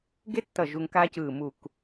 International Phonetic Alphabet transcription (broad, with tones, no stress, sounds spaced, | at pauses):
ɡ e˥ tː ʌ˧˩ ʒ u˧ ŋ k aː˥ c ɯː˧˩ m u˧˩ k